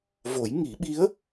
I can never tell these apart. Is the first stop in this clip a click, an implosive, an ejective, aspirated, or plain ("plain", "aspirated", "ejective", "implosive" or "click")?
implosive